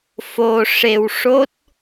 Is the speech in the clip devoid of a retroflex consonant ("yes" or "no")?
no